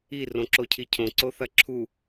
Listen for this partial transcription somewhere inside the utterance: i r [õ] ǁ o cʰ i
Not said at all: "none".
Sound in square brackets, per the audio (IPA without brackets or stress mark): õ